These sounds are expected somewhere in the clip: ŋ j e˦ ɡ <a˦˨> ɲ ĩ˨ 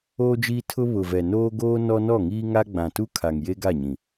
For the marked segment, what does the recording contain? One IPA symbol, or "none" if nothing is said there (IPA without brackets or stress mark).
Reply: a˦˨